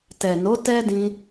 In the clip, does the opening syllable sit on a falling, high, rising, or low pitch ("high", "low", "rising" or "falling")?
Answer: low